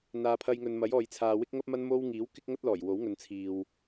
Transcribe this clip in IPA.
n̪ aː˨ pʰ ɐ˧ j ŋ ɵ˨ n m ɐ˨˥ j ɔː˨ j t͡sʰ aː˨ w ɪ˥ k̚ ŋ ɐ˥ p̚ m ɐ˥ n m o˥ w ŋ iː˨˥ w k ɪ˥ k̚ ŋ ɐ˥ t̚ l ɔː˨˩ j w o˨˥ w ŋ ɵ˨˧ n t͡sʰ iː˨ w

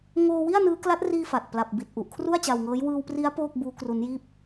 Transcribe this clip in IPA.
ŋ oː˧ w i˥˩ a̯ n ɯː˦˥ k l a˦˥ t̚ r iː˧ f aː˨˩ t̚ p l a˨˩ p̚ b i˨˩ t̚ ʔ u˨˩ ʔ kʰ r u˥˩ a̯ t͡ɕ a˧ w ŋ ɤː˦˥ j w ɯː˧ w p r i˦˥ a̯ p oː˥˩ k̚ b uː˦˥ k r u˦˥ n j iː˥˩ p̚

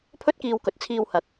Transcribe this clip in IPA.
pʰ ɵ˥ t̚ k iː˧ w k ɵ˨˥ t̚ t͡sʰ iː˧ w h ɐ˨˥ k̚

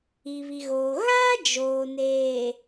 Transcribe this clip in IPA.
i˨ β i˨ ɣ oː˨ ɣ a˦ d͡ʒ oː˨ n eː˨

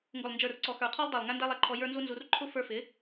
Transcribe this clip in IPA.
ŋ ɡ ʊ˨ lˠ n d͡ʒ ə˞˨ r ǀ ɔ˨ x ə˞˨ qʰ ɔ˧ lˠ dˤ æ˨ lˠ ŋ æ˦ n d æ˦ lˠ æ˧ ǃʰ ɔ˧ j ə˞˦ n z u˦ n z u˧ r ǃʰ ʊ˦ f ə˞˧ f ɪ˨˦

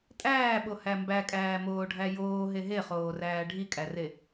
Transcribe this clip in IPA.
tʼ æː ɓ o h æ m b æ kʼ æː m oː ɖʱ æ j oː ɦ e ɦ e χ oː r æː ɖʱ i kʼ æ r e

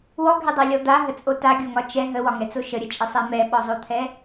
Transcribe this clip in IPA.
w ɔ ɡʱ ɛ dˤ a lʲ ɔ d̪ a ɦ ə t͡sʼ o t a ɡʲ o ŋ ɒ t͡ʃ ɛ ɦ ə w ɒ ŋ ɛ t͡s o ʃ ə ɾʲ ə t͡ʃʼ ə sˤ ɛ m ɛ ɓ ɔ zˤ o t̪ʰ ɛ

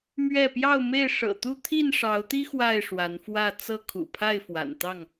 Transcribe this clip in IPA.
m ɥ ɛ˥˨ p j ɑ˥˨ ʊ̯ m e˥˨ ɪ̯ ʂ ɤ̰˨˩ t̪ u˥˨ t̪ʰ i˥˨ n ʂ ɑ˨˦ ʊ̯ t̪ i˦ x w a˥˨ ɪ̯ ʂ w a˨˦ n f w ä˥˨ t͡s ɤ˦ kʰ ṵ˨˩ pʰ a˥˨ ɪ̯ f w a̰˨˩ n t̪ ɑ˥˨ ŋ

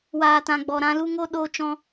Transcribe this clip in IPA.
w aː˨ t ã˨ ɡ͡b ɔ˨ ɾ ã˧ l u˦ ŋ o˦ ɗ o˧ t͡ʃ ɔ̃˧

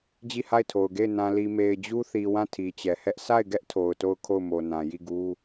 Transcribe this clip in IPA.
d͡ʑ i˦˨ h a˦˨ ɪ̯ tʰ o˨ ʊ̯ ɡ e˦˨ ɪ̯ n ã˨ l i˨ m e˨ ɪ̯ d͡ʑ u˦ θ i˨ w ã˦˨ tʰ i˨ t͡ɕ ɛ˨ h ɛ˦ ʔ sʰ a˦˨ ɪ̯ ɡ ɛ˦ ʔ tʰ o˨ ʊ̯ t o˦˨ ʊ̯ kʰ o˦˨ ʊ̯ m o˨ n ã˨ j i˦˨ ɡ u˦

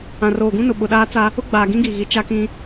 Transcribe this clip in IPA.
ã˨ r oː˨ ɡ ũ˦ n ʊ˨ ɓ ʊ˨ ɗ aː˦ t͡s a˦ | ʊ˦ ɡ͡b aː˨ ɡ ĩ˦ ɡ i˨ ɣ i˨ t͡ʃ a˦ k ĩ˦

